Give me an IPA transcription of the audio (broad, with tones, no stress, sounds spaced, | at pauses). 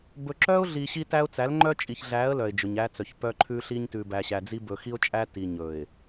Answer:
b ɵ˨ ǁ œ˦ ʊ̯ ɮ i˨ ɕ i˦ t æ˦ ʊ̯ t͡s æ˨˦ l ŋ͡ǃ œ˦ t͡ʃʼ i˨ ç ɮ æ˨˦ ə̯ l œ˨ ɪ̯ d͡ʒ ɵ˨ ɲ æ˦ t͡s œ˨ ç p œ˦ ǃʰ ʉ˦ ɬ i˦ ɲ t ʉ˨ b æ˨ ɕ æ˨ d͡z i˦ b ɵ˨ x i˦ ʊ̯ t͡ʃʼ æ˦ t i˦ ɲ ɵ˨ ɪ̯